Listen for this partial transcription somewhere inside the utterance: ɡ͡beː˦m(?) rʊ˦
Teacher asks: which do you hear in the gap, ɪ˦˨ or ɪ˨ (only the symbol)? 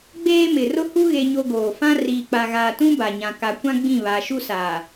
ɪ˨